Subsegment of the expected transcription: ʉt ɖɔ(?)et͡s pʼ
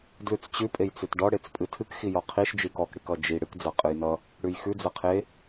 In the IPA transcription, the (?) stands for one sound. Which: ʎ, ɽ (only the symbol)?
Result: ɽ